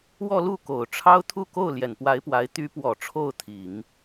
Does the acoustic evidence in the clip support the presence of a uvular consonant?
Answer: no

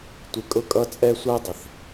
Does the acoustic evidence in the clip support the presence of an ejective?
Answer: yes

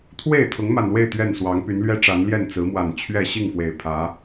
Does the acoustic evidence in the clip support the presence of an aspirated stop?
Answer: yes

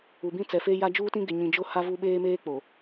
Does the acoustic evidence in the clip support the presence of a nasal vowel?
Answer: yes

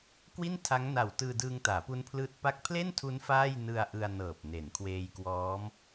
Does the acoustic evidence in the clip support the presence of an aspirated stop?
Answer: yes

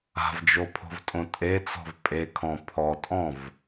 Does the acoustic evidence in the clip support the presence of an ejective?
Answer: yes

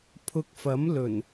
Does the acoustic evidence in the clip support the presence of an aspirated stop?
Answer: yes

